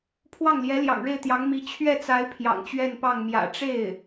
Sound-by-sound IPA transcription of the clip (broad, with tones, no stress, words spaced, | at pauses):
pʰwɑ˥˩ŋljɛ˧˥ ljɑ̰˨˩ŋɻe˥˩ɪ̯t̪jɑ˧˥ŋ mi˧˥ t͡ɕʰɥɛ˥˩t͡sa˧˥ɪ̯ pʰjɑ̰˨˩ŋt͡ɕɥɛ˥˧npɑ˥˩ŋ mjä̰˨˩ ʈ͡ʂe˥˩ɪ̯